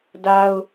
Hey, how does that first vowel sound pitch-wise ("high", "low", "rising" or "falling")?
high